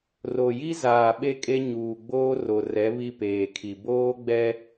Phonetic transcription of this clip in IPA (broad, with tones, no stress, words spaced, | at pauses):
ro˨ji˦zaː˨ ɓe˦kʼe˦ ɲuː˨ɡ͡boː˦ro˨rɛ˨˦ βi˦peː˨kʰi˨ boː˦ɡ͡bɛ˦